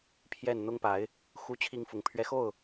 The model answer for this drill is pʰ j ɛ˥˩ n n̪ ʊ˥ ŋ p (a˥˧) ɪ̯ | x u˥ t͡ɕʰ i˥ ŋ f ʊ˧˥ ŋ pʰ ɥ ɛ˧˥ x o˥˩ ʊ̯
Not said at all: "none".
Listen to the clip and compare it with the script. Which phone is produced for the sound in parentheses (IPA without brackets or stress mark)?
a˧˥